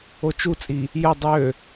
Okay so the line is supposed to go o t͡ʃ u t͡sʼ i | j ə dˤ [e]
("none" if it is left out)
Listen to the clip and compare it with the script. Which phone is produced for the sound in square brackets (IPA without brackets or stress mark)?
ø